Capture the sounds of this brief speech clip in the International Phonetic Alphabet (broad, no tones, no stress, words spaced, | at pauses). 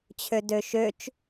t͡ɕʰødøʃøt͡ʃ